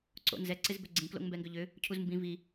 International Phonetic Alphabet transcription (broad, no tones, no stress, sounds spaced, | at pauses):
ǀ o̰ n z ɛ ǀ ɪ z b ʏ ɡ͡ǀ ĩ k l o̰ ŋ m b ɛ ŋ ɡ ʏ ʎ ʏ | cʰ u z m b ĩ v i